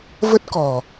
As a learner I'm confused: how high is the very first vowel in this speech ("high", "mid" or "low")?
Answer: mid